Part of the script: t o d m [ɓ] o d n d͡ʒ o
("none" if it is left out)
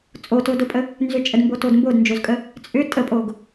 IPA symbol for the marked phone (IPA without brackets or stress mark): b